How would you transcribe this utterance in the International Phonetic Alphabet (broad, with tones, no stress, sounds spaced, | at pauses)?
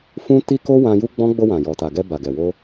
f ũ˦ t i˦ k o˦ w ã˧ j u˦ ɡ͡b ɔ̃˦ ɡ͡b o˧ w ã˨ j ɔ˨ t a˨ ɡ ɛ˧ b a˨ ɡ ɛ˨ w o˧